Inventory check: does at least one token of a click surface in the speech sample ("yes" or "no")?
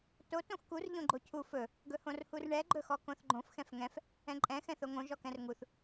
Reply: yes